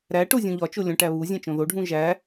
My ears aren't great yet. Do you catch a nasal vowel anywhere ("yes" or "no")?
yes